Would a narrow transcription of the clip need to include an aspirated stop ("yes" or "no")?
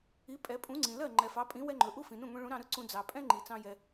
no